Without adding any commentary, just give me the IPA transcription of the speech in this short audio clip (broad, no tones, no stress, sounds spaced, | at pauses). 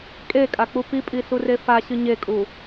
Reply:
kʼ e kʼ a k͡p u p i pʼ i s u r e f a ɕ ɨ ɲ e kʼ u